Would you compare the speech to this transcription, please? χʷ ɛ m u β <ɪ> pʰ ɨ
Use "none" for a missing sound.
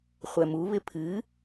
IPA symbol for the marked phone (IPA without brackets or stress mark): ɪ